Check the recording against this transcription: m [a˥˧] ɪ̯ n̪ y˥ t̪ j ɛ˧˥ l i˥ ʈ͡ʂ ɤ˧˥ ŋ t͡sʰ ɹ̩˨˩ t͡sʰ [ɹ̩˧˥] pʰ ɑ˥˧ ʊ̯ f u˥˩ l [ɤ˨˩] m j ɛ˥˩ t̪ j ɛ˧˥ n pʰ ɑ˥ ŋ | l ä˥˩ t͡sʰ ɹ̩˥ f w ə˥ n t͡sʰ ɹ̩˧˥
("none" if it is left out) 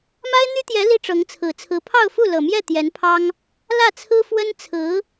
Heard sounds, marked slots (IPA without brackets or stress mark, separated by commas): a˥, ɹ̩˧˥, ɤ˨˩